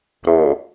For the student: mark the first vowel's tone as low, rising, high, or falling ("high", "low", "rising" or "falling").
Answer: low